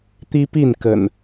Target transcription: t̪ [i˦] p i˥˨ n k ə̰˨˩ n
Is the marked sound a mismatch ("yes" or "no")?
no